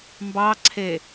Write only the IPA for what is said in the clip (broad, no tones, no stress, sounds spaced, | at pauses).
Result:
m b ɑ ǀʰ e